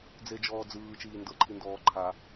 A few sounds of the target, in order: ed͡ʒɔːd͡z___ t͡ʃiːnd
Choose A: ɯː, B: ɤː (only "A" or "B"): A